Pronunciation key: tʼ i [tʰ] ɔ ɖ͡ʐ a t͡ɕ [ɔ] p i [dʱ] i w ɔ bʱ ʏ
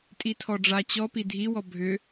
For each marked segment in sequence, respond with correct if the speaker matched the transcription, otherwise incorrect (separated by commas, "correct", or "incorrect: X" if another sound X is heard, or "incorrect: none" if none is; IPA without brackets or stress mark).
correct, correct, correct